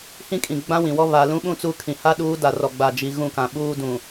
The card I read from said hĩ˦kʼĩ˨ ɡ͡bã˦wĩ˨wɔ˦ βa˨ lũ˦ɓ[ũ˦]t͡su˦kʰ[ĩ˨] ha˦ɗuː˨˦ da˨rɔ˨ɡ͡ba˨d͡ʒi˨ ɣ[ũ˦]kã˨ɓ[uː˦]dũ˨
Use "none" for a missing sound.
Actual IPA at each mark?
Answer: ũ˦, ĩ˨, ũ˦˨, uː˦

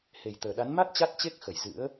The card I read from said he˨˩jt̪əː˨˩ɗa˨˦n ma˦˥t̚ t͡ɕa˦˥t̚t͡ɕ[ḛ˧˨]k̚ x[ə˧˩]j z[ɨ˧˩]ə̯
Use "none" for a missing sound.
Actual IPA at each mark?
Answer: e˦˥, ə˧˩, ɨ̰˧˥

